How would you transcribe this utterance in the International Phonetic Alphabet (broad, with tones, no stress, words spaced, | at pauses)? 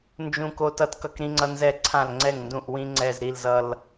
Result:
nd͡ʒũ˧ko˧ tʌ˧tkʌ˧kɾĩ˧ŋ͡ǀʌ˧ nzɛ˨˩ǀʰã˨˩lŋ͡ǀɛ˨˩ŋndũ˨˩ʔ wĩ˧ŋ͡ǀɛ˨˩z ɾi˨˩lzʌ˨˩l